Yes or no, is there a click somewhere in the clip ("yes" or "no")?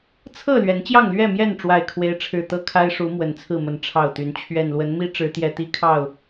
no